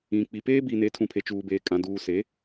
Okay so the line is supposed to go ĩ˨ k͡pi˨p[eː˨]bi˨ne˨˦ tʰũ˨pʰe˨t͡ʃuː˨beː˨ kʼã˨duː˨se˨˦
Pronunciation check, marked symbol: incorrect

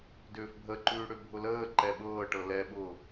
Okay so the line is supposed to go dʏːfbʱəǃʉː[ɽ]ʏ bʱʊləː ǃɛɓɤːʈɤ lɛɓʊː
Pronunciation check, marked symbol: correct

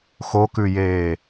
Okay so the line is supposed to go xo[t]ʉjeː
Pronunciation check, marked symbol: incorrect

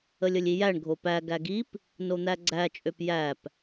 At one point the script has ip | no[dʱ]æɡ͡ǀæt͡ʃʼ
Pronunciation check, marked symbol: incorrect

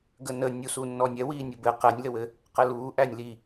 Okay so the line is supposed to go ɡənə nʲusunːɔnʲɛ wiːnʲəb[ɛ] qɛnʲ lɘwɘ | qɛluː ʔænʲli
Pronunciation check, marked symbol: incorrect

